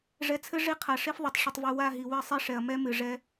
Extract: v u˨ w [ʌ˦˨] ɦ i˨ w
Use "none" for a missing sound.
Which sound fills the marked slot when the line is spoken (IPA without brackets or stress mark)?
a˦˨